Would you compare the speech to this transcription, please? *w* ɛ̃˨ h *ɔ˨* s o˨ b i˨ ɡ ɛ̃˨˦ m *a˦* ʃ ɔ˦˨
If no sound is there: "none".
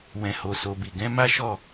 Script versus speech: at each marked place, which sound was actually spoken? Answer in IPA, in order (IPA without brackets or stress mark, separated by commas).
w, o˨, a˦